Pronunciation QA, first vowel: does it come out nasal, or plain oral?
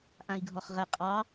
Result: nasal